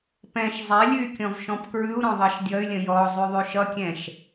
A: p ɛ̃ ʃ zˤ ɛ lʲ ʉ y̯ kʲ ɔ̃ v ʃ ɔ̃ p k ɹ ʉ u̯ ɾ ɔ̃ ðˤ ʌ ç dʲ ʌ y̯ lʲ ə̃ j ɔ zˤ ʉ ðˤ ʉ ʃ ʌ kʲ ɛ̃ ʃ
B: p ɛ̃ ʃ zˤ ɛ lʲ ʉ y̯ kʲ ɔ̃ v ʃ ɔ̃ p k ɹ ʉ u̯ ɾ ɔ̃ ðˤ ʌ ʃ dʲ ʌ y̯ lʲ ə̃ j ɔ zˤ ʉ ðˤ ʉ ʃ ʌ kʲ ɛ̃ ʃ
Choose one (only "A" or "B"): B